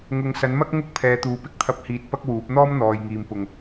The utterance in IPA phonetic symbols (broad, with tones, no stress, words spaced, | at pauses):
ŋʊ˨ŋsɐ˨˥nmɐ˥k̚ ŋʊ˧k̚ pʰɛː˨˧t̪uː˨pɪ˨˥k̚t̪ʰɐ˧p̚ hiː˧t̚pɐ˥k̚wuː˨˥p̚ n̪ɔː˥mn̪ɔː˨jŋiː˨m pʊ˨ŋ